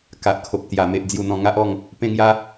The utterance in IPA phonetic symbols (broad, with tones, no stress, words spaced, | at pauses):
ka˨ʔkʰo˨p̚t̪ja˨˩me˨ʔ d͡zju˨˩ n̪ɔ̃˧ŋa˦ʔɔ˥˧ŋ | pẽ˧ŋja˧